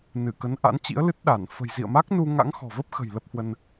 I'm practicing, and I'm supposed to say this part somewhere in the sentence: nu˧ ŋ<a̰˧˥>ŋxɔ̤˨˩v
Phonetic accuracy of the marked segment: correct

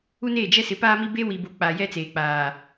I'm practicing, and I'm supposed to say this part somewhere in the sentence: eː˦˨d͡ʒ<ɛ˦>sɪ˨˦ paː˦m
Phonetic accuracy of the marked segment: correct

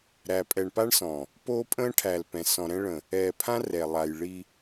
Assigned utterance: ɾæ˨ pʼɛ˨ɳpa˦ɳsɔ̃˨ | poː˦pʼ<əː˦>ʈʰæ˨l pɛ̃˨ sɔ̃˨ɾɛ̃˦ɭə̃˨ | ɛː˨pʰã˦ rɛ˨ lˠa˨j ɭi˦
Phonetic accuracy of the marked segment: incorrect: ə̃ː˦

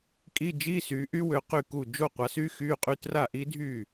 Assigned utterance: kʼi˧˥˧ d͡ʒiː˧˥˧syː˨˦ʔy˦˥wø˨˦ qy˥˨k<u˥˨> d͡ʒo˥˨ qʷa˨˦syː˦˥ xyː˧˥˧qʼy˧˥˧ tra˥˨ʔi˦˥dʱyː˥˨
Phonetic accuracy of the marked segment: correct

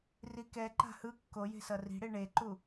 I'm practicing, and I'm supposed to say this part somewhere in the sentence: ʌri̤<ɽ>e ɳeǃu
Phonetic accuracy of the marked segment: correct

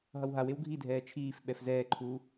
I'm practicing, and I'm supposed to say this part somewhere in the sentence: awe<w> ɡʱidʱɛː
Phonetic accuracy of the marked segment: correct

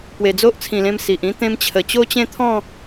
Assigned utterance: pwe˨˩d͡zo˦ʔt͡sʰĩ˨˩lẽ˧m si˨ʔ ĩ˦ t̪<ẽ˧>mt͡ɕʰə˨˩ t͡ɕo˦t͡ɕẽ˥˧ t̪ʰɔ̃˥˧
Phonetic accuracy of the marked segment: correct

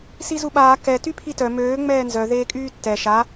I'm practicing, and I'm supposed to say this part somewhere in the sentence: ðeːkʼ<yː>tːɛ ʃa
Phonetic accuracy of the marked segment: correct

